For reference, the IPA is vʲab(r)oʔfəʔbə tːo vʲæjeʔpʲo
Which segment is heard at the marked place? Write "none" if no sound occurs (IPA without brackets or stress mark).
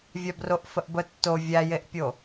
r